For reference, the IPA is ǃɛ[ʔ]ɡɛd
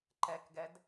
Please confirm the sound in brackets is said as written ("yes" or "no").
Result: no